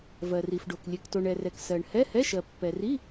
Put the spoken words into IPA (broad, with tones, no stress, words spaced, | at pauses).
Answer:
vɜ˨ri˨fɖo˨k lʲɛ˨kto˨ɳɛ˨rɛ˨k sɜ˨ɳ hɛ˧˥˧hɛ˧˥˧ʃɜ˨ pːɛ˨ri˧˥˧